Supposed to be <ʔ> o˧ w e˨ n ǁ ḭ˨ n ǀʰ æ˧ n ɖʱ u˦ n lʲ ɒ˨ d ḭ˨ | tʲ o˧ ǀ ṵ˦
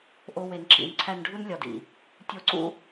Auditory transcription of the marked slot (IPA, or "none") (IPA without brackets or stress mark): ʔ